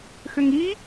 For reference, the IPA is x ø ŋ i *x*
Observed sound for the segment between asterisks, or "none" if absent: none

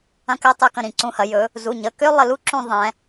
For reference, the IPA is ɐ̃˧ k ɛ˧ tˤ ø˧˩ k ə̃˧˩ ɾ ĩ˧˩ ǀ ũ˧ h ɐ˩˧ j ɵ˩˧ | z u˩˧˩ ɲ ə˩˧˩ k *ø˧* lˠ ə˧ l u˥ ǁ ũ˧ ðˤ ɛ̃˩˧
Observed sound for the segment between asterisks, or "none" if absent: ø˥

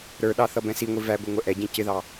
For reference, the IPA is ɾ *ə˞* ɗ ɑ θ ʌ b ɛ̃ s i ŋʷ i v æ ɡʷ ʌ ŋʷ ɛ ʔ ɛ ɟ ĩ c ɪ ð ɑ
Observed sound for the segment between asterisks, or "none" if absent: ə˞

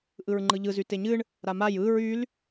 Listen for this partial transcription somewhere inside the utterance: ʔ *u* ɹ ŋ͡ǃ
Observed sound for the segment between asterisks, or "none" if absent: ɯ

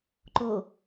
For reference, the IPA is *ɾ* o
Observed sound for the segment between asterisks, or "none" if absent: ǃ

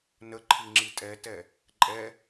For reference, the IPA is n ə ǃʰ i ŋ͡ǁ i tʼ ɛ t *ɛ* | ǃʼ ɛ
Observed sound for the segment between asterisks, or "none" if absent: ɛ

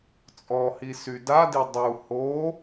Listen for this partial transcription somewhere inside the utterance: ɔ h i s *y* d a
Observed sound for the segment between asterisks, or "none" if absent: y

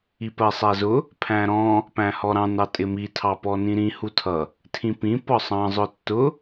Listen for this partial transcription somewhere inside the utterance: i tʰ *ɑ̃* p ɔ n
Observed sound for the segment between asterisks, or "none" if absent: ɑ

